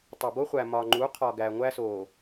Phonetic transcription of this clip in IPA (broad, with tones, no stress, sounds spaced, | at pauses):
tˤ o˨ b o˦ χʷ æ˨ m ɒ˨ ŋ͡ǃ u˨˦ qʰ ɒ˨ ɡ æ˨ ŋʷ æ˦ s o˨